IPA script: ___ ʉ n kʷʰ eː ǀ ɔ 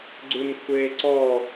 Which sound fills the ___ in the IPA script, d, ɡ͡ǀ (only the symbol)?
ɡ͡ǀ